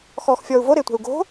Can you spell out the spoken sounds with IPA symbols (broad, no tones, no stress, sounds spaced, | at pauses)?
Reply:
x ɔː x fʲ ɔː u̯ v o ɾ ɪː tʷ ɛ̤ u̯ ɡ o̤